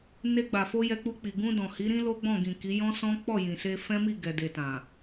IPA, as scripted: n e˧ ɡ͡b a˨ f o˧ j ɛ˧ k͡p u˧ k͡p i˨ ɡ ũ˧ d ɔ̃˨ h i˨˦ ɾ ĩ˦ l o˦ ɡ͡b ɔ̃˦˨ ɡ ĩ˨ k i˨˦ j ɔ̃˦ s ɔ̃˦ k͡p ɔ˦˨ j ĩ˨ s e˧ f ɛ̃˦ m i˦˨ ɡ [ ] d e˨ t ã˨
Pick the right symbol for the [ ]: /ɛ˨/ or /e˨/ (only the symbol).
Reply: ɛ˨